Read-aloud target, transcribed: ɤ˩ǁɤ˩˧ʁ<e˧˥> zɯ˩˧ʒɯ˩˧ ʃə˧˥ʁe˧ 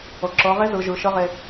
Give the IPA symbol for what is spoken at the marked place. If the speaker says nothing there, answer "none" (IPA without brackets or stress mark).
e˧˥